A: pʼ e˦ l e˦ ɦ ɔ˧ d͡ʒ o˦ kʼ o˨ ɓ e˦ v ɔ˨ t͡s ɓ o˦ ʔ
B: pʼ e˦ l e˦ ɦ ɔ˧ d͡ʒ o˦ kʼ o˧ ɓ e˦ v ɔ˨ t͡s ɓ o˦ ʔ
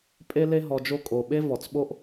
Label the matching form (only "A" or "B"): A